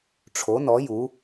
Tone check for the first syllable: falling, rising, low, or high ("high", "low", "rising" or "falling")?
rising